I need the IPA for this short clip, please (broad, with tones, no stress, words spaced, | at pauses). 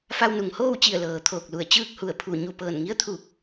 fa˧wnu˩ŋhoː˥˨wt͡ɕi˧˩ə̯ lɤː˩t̪ʰoː˧˩k̚lu˧˩ə̯ t͡ɕɯː˥˨k̚hu˧˩ə̯pʰu˧˩ ɲu˧˩pɤː˧˩nŋi˧˥ə̯t̪ʰu˧˩k̚